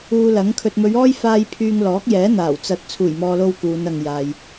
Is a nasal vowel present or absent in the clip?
absent